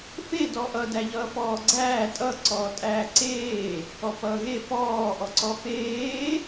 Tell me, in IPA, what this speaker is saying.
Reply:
f e d ɔ ʔ ʌ d æ ʎ ʌː f ɔː ɡ͡ǀ æː tʼ ʌ ǀ ɔː tʼ æː ǀ eː | ɔ p ʌː ɣ e f ɔː ʔ ɔ ǀ ɔ f eː

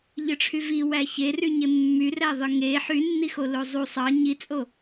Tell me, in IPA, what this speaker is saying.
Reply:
ʎ ɯ ʈ͡ʂʰ y v i w æ ç e r y ɲ e mː y r æ ðˤ ɯ ŋ e ħ y nː i x o l o zˤ u sˤ ɑ ɲ i t͡sʼ o

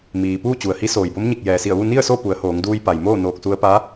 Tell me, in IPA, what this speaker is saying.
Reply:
m iː˩ p uː˥˨ t͡ɕ u˩ ə̯ h i˧˥ s oː˩ j b o˧˥ m ɲ i˧˩ k̚ j ɛː˩ s i˧˩ ə̯ ʋ u˥˨ n i˥˨ ə̯ s o˥˨ p u˩˧ ə̯ h oː˩˧ ŋ d uː˧ j p a˩ j m oː˥˨ n oː˧˩ k̚ s u˧ ə̯ p a˧˥

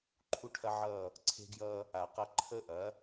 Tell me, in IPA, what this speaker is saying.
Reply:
ǃʰ u˦ ʈʰ ɐ˦ ʕ ʌː˦˨ | ǀʰ e̤˦ ɡ j ʌː˦ | a˨ q ɐ˦ ǃʰ ə˦ ʔ ɐ˨˦

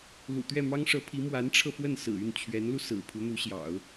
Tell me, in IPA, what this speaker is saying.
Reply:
l ṵ˨˩ t̪ ɥ ɛ˥˩ m ɑ˥ ŋ ʂ ɤ˧˥ pʰ i˧˥ m w a˧˥ n ʈ͡ʂʰ ɤ˧ f w ə˥˩ n s ɹ̩˨˩ y˥˩ n t͡ɕʰ ɥ ɛ˧˥ n l u˧ s ɹ̩˨˩ pʰ u˧˥ n̪ u˧˥ ɕ j ɑ̰˨˩˦ ʊ̯

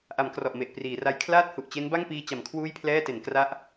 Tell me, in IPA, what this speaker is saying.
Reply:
ʔ a˩˦ m k r ɔ˨˩ ʔ m e˨˩ ʔ p r iː˩˦ r a˧ j kʰ l aː˥˩ t̚ h u˨˩ ʔ t͡ɕ e˦˥ n b a˥˩ ŋ p iː˧ t͡ɕ a˩˦ m kʰ w uː˥˩ j pʰ l ɛː˥˩ t e˩˦ n k r a˦˥ ʔ

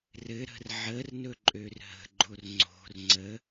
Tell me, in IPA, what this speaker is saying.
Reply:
r ɘ ɾ ə̤ r ʕ ə r n ɵ ǃʼ ø r ɦ ə̤ ɡ͡ǃ o r ŋ͡ǀ o̤ r ŋ͡ǀ ə

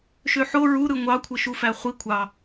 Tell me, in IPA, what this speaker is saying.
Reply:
ʃ ø ħ o ɹ u ɾ ɯ ŋʷ ɑ kʷʰ ɯ ʃ u f æ χʷ i kʷʰ ɑ

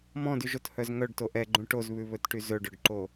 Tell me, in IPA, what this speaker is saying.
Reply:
m ɔ̃ d y ʒ o t h œ z ŋ œ ɖ t o ʔ ɛ ɡ͡ǃ ũ ʈ o z β ʉ β ɵ t ʈ y z ɵ ɖ ɵ ɖ ǃ o

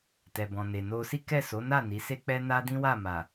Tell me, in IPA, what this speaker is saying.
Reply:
t ɛ˨ b ɔ̃˨ n e˨ n o˧ s i˦ k ɛ˦˨ s o˨˦ n a˦˨ n i˨˦ s e˦ k͡p ɛ˦ n a˦ d ĩ˦ w a˦˨ m a˨

